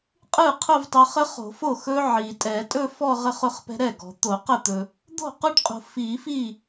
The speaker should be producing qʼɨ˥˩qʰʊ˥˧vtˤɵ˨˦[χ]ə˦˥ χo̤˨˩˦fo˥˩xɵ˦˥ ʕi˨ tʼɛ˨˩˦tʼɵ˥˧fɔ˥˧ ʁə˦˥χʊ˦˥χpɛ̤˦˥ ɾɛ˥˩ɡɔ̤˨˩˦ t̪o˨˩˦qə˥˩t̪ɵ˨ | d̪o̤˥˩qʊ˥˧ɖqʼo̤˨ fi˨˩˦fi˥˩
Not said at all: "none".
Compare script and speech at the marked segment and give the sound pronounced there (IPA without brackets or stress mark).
χ